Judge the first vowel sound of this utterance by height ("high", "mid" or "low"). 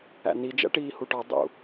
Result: low